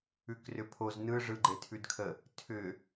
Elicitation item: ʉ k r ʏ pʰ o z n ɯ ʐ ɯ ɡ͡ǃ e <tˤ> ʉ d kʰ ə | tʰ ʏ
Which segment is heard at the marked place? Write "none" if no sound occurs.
tʰ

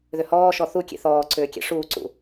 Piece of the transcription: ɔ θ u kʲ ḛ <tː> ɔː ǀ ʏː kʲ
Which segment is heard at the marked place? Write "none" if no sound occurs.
θ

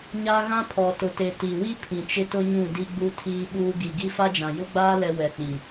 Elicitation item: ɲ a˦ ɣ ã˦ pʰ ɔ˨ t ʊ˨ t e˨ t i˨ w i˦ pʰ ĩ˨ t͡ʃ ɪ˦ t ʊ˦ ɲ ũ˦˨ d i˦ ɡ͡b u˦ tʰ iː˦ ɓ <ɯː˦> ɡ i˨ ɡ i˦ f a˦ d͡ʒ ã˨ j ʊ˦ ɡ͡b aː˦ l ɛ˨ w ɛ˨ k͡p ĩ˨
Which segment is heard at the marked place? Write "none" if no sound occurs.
uː˦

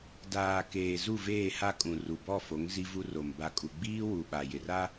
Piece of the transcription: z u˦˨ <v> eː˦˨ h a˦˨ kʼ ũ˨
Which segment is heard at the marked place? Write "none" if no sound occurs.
v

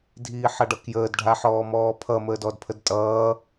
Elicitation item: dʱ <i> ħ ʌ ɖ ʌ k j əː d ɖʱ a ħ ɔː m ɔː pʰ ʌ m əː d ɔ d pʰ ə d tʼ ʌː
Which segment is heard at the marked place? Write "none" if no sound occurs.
iː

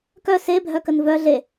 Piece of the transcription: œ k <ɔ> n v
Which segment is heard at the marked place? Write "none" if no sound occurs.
ə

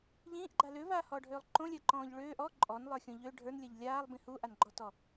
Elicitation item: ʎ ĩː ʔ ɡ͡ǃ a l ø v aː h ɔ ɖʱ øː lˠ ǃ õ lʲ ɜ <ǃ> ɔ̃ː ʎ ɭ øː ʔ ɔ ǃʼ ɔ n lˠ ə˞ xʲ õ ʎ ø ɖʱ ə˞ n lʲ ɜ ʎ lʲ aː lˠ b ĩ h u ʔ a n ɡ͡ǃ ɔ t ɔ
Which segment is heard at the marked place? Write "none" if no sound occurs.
ǃ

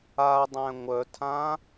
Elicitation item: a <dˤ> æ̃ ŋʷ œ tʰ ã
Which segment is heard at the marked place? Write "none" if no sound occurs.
dˤ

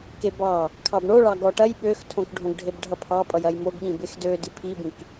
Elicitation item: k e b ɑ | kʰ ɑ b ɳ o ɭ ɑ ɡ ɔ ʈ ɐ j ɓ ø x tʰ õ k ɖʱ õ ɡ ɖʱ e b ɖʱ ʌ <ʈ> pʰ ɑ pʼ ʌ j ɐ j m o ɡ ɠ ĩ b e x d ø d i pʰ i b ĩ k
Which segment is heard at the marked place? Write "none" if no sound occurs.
none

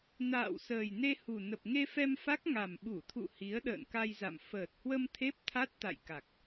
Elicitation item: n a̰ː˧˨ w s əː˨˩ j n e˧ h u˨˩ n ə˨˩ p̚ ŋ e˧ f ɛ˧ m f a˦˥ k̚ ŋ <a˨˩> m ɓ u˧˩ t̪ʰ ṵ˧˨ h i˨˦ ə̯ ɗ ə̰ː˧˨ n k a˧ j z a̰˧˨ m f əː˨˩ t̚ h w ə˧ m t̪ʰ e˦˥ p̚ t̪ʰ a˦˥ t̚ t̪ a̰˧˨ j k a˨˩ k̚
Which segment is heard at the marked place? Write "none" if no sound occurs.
a˨˩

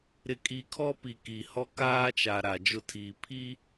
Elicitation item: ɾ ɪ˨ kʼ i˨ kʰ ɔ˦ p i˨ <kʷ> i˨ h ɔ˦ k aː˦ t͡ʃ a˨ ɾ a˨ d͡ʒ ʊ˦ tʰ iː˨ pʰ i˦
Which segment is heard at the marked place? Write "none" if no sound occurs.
k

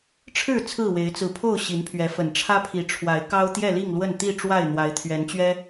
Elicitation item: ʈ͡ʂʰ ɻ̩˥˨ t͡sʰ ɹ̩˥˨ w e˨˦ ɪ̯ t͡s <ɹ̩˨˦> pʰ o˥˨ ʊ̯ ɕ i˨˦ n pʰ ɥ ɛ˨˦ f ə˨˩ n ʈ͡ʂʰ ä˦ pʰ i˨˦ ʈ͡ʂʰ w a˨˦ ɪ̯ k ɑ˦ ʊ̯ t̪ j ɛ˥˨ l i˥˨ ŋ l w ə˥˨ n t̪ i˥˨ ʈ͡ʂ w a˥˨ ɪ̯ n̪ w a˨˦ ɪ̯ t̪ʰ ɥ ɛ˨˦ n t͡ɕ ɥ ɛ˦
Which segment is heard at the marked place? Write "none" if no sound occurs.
ɹ̩˨˦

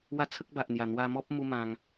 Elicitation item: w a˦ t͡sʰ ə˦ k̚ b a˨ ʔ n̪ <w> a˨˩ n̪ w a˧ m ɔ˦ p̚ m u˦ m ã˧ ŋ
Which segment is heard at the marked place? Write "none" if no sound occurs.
j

